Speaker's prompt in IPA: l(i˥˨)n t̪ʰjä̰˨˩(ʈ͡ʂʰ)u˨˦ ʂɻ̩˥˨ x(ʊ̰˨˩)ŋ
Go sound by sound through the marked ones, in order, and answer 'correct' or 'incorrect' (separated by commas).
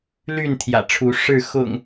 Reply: incorrect, correct, correct